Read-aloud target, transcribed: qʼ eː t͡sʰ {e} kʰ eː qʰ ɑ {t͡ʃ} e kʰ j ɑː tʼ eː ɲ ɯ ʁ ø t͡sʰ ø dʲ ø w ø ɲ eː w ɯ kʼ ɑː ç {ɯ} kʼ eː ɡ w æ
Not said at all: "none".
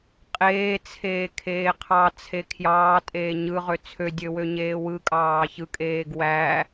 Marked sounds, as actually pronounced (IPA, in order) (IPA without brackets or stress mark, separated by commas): eː, t͡sʰ, ɯ